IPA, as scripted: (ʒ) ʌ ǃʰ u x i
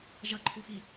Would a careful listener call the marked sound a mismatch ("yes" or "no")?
no